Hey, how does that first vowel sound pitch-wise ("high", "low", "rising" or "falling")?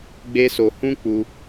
high